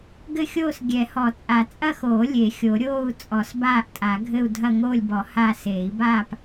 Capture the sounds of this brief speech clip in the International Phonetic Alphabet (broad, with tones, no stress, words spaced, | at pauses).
ɡɘ˥˧xʲoː˥˧s ɡʲɛ˨˩˦hɔ˨˩˦t͡sʼa˨˩˦ t͡sʼɐ˥˧xoː˨˩˦ lʲe˨˩˦xʲo˨˩˦ ɾʲoː˥˧u̯ t͡sʼɔ˨˩˦sbaː˥˧ʔtʼa˨˩˦ɡʱɘ˥˧u̯ dʱɐ˥˧ŋoː˥˧lʲbɔ˨˩˦ ha˥˧ seː˨˩˦i̯baː˥˧p